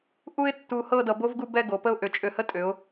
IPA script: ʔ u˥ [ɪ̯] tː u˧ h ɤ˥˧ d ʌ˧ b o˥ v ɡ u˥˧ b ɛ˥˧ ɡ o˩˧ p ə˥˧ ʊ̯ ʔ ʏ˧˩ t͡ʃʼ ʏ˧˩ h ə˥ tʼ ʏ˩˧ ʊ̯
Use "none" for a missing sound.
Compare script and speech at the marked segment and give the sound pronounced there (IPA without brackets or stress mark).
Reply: ɪ̯